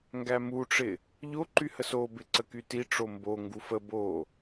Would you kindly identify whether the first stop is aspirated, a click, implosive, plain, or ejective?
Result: plain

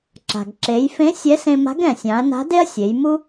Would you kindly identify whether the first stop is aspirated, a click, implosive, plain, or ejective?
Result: click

